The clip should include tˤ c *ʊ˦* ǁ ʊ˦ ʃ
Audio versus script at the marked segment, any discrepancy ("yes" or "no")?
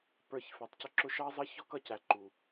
no